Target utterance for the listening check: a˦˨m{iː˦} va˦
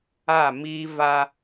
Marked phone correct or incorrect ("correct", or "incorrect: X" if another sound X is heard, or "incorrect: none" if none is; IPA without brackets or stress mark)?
correct